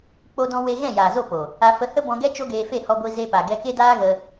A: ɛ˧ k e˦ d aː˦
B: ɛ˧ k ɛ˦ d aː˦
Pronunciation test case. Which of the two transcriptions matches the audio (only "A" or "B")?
A